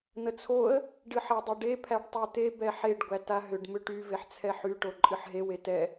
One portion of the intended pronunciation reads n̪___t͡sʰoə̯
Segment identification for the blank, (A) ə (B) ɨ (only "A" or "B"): A